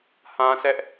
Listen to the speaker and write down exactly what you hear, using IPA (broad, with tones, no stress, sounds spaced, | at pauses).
h ã˦ s ɛ˦ ʔ